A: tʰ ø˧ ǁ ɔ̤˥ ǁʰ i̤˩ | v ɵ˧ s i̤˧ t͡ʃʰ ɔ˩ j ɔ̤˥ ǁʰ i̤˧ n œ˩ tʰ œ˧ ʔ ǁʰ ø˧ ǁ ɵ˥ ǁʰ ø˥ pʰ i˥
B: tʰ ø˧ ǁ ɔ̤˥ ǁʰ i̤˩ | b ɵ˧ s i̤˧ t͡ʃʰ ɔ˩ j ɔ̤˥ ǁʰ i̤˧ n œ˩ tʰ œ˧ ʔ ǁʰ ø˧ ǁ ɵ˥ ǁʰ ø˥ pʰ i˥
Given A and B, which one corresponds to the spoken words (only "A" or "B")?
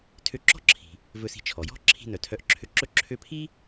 A